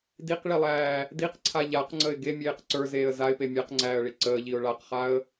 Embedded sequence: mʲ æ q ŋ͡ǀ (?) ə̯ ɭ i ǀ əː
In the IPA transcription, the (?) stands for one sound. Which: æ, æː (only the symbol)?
æː